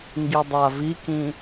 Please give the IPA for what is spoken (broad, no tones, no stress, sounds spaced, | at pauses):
ŋ ɡ i dˤ a v i k ĩ